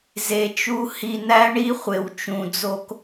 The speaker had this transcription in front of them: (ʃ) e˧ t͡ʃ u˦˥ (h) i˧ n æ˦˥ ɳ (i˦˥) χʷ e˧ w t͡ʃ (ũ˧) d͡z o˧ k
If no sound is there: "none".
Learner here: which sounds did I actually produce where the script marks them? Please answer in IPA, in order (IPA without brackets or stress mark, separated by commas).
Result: z, h, i˦˥, ũ˧